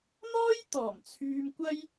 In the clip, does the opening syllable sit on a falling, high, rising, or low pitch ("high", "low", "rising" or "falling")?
high